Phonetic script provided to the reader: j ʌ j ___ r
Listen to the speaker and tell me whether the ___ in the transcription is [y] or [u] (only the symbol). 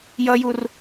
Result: u